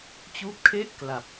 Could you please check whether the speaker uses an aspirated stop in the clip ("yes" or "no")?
yes